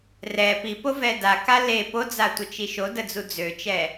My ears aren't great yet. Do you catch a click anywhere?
no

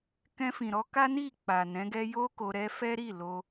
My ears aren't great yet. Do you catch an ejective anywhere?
no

